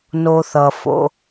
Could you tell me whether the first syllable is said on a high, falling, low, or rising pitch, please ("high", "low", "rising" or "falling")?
high